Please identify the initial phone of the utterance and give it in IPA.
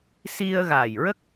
s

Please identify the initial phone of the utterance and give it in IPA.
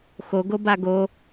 x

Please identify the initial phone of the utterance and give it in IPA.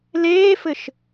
l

